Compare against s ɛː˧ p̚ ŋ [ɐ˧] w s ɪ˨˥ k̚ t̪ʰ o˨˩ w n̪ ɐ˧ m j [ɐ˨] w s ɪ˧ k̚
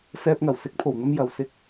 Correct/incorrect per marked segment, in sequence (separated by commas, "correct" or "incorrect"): incorrect, correct